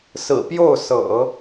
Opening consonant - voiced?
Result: no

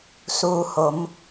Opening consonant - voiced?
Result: no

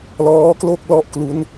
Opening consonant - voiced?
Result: yes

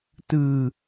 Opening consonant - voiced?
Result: no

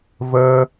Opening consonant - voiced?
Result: yes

